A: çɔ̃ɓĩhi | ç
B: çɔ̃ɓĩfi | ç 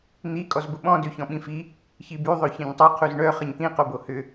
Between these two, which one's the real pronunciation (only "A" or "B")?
B